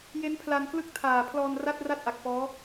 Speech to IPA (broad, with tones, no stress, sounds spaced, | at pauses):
j e˦˥ n pʰ l a˧ n k l ɯ˥˩ k̚ tʰ aː˨˩ pʰ l ɔː˧ n r a˥˩ t̚ r a˥˩ t̚ ʔ a˨˩ k̚ f ɔː˦˥